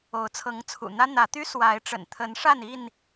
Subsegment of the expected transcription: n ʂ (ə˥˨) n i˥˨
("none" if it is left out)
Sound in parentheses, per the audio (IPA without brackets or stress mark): a˥˨